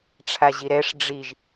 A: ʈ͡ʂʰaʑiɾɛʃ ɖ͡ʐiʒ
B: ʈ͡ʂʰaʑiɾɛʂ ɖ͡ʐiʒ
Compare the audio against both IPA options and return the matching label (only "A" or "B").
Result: B